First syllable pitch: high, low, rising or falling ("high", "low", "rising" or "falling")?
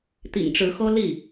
low